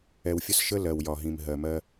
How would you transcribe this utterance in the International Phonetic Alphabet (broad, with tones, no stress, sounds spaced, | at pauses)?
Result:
ɛ˨ w fʲ ə˦ s ʃ ə˦ l ɜ˨ w j ɒ˨ ɦ ĩ˨ m ɦ ɜ˨ m ɜ˦